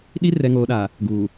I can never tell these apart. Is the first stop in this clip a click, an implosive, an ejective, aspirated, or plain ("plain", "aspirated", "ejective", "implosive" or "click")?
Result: implosive